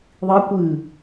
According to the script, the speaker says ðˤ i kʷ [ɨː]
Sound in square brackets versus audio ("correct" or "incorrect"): correct